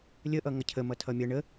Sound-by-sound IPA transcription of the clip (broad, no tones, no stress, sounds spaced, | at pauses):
lʲ ə ʔ ʌ ŋ ʌ cʰ ə m ʌ tʰ ʌ mʲ ʌ ɳ ə